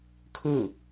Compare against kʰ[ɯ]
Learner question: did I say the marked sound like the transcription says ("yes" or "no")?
yes